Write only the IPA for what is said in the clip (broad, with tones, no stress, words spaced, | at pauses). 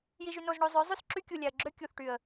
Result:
ji˧ʒy˧no˧zɳo˧ zˤø˨˦ zˤy˦˨sǁy˦ kʲu˨lʲæ˨ə̯ɡ͡ǁø˦ kʲu˨θʈy˨ə̯